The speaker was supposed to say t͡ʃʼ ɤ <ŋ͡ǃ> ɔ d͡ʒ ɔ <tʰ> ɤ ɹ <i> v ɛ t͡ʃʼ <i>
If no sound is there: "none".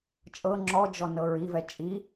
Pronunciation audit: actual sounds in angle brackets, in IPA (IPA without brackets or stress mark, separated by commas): ŋ͡ǁ, n, i, i